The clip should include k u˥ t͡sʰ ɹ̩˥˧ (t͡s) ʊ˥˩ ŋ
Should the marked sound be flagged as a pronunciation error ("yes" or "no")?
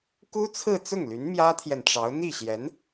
no